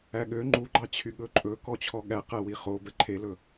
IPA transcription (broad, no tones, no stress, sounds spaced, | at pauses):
æ ɠ ø ŋ͡ǃ u ɡ͡ǃ ɑ t͡ɕʰ y ɠ ɵ ǃʼ ɵ k ɔ t͡ɕʰ ɔ ɠ æ q æ w i χ o b ɛ ǃʰ e l ɵ